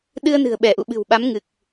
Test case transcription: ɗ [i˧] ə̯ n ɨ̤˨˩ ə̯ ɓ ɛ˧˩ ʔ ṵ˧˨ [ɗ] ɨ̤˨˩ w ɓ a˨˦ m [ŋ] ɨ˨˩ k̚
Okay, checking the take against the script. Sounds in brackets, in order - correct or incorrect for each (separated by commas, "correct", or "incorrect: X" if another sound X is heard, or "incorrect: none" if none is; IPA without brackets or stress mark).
incorrect: ɨ˧, incorrect: ɓ, correct